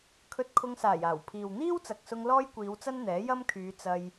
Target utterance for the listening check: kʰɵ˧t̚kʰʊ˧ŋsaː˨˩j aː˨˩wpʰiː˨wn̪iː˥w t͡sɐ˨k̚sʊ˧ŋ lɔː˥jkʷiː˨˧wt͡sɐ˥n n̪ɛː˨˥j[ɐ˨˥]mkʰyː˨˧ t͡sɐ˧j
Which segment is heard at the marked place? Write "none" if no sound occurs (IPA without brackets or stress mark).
ɐ˥